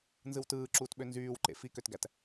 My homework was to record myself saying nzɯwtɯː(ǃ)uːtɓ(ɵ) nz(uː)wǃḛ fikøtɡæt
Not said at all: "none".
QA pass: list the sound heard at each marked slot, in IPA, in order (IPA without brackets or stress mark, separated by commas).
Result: ǁ, ø, yː